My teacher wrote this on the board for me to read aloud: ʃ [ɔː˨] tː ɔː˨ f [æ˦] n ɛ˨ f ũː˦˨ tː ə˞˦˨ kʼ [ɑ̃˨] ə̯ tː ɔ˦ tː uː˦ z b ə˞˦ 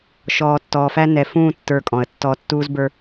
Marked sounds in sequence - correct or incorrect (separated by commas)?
correct, correct, incorrect